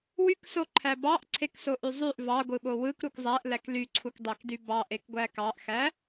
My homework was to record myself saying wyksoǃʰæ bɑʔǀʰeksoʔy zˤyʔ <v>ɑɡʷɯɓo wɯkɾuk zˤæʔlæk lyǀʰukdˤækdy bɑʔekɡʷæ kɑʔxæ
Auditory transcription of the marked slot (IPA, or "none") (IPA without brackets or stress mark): v